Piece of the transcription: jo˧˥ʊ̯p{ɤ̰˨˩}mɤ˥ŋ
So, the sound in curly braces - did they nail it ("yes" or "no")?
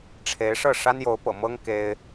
yes